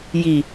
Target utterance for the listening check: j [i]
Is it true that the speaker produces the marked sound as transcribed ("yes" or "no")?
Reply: yes